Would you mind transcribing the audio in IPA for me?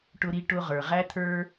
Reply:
ʈ ʊ˧ ɾ i˧ ʈ ʊ˧ ʁ ə˞˩ ʁ æ˥ t̪ʰ ə˞˥

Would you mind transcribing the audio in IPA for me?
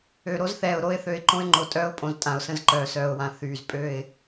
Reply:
ø˨ ɾ o˦ z θ ɛː˨ ʊ̯ ɾ o˦ ɪ̯ θ ø˨ ɪ̯ ǃ õ˦ ɪ̯ ŋ͡ǃ o˨ tʼ œː˦ ʊ̯ pʼ õ˨ z tʼ ã˨ ʊ̯ s ə̃˦ z ǃ œː˨ s œː˨ ʊ̯ w ã˨˦ θ yː˨ z pʼ ø˦˨ ɪ̯

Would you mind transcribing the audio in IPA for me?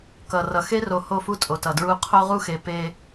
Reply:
k ʌ˨ r ʌ˨ x e˦ r o˨˦ h o˦˨ f u˦ tʼ o˨ t ʌ˨ d ɹ u˦ qʰ o˦ ʁ u˦ x e˨ p e˦

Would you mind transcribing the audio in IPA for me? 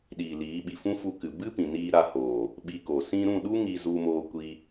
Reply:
ɗ iː˨ l iː˨˦ ɓ i˨ f ũ˦ f u˧ k ɨ˨ b ɨ˦ p ĩ˨ n iː˧ ɾ a˧ h oː˨ | ɓ i˧ k o˨ s ĩ˧ ɾ ũ˦˨ ɗ u˦ ŋ i˧ z u˧ m oː˧ kʷ i˦

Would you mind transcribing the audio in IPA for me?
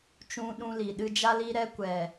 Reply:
t͡ʃ ũ˧ ɗ ũ˧ l i˨ ɗ ɨ˧ d͡ʒ a˧ l i˧ ɾ ɛ˧ kʷ ɛ˨

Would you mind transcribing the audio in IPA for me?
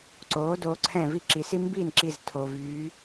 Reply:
ǀ oː˩˧ d oː˩˧ ǀʰ ɛ̃˧˩ v i˥˩ ǁ i˩ s i˦ m b iː˥˩ n ǁ i˧˩ z tʰ o˩ v yː˩˧

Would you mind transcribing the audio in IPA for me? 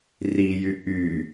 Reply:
r i j y ʔ y

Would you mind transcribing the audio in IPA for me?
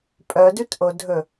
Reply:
pʼ œ d ʉ t ʔ o dʱ ɵ

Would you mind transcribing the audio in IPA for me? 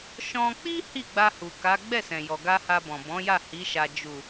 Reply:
ʃ ɔ̃˧ k͡p i˦ h i˦˨ ɡ͡b a˧ h u˨ k a˨˦ ɡ͡b ɛ˦˨ s ɛ̃˨ j ɔ˨ ɡ a˧ h a˧ b ɔ̃˨ b ɔ̃˨˦ j a˦˨ h i˨˦ ʃ a˧ d͡ʒ u˨

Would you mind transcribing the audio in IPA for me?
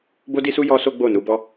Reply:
b o˦ d i˦ s u˦ j ɔ˦ s o˦ ɡ͡b o˦˨ n u˨˦ b ɔ˦

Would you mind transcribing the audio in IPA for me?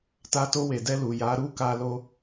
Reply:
t a˧ t o˧ w e˨ d ɛ˧ l u˨ j a˨˦ ɾ u˦ k a˧ l o˧

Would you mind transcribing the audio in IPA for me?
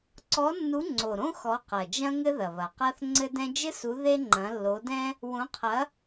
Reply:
ǀ ɔ˨˥ nː u˨˥ ŋ͡ǀ o˨˩ ɾ õ˥ x ɔ˨˥ q ɐ˨˩ d͡ʒ ɐ̃˥ ŋ ɘ˥ ð ɐ˨˩ β ɐ˨˩ q a˥ θ ŋ͡ǀ ɘ˥ d ɛ̃˥ d͡ʒ ɘ˥ s u˨˥ ð e˥ ŋ͡ǃ ɐ̃˨˥ lː o˨˥ d ɛ̃˥ | w õ˨˥ qʰ ɐ˨˥

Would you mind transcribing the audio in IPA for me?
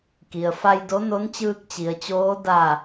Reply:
k i˩ ə̯ f a˧ j d o˧˥ n o˧˥ n t͡ɕ ɯː˧ k̚ t͡ɕ i˩˧ ə̯ t͡ɕ oː˧˥ d a˧˩

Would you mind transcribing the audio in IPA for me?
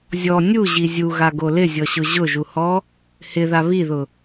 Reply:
zʲ ɔ nʲ u ʑ i zʲ u ɣ a ɡ o l ɪ zʲ ɔ ɕ ʊ ʑ ʊ ʒ u h ɔ | h ɪ ð a β i ð ʊ

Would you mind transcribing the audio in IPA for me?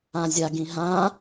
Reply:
ã zʲ a ɡ ĩ ɦ ã

